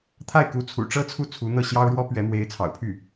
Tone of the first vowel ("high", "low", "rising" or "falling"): falling